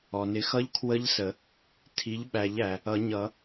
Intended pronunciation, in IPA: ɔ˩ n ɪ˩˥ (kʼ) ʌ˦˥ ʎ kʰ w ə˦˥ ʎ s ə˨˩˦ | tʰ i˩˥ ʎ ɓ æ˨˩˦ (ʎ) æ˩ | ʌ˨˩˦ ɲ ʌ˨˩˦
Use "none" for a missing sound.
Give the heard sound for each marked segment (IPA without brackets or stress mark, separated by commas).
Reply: x, ʎ